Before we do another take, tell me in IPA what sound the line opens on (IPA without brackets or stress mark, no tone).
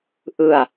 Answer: ʔ